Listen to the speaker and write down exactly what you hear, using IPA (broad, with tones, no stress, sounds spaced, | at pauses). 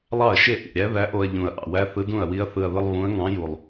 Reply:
lˠ ɑ˥˩ ɐ̯ ʃ e˥˩ ʔ ḭ˨˩ ɾʲ æ˧˥ ð æ˧˥ ʔ o˧ ɐ̯ ʎ ũ˨˩ ɐ̯ ʔ ɑ̰˨˩ w æ˧˥ θ ɯ˧˥ d ũ˥˩ ɐ̯ w i˧˥ ɐ̯ θ ɯ˨˩ ɐ̯ ð ɯ˧ lˠ β ũ˧˥ ɐ̯ ŋ ɑ̃˧˥ j u˨˩ lˠ